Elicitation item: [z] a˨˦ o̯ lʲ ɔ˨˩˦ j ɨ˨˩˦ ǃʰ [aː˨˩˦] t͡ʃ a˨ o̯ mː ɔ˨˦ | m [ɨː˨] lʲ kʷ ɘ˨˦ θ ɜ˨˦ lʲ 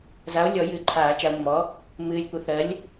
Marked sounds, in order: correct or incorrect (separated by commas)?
correct, correct, correct